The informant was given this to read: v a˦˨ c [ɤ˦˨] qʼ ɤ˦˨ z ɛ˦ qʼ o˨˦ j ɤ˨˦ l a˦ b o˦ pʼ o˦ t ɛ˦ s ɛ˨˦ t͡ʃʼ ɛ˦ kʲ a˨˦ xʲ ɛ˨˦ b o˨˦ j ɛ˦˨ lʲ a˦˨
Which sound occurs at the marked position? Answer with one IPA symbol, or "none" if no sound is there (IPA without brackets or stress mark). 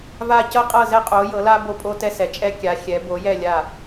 ɤ˦